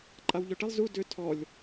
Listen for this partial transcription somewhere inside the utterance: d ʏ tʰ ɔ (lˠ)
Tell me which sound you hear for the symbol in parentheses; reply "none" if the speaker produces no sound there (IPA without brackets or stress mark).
lʲ